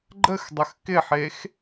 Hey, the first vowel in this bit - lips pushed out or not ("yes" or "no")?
no